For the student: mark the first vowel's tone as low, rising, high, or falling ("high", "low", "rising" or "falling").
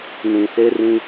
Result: low